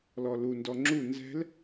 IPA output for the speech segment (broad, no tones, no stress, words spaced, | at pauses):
lɔlundɔ ŋ͡ǁu nzɛ̤l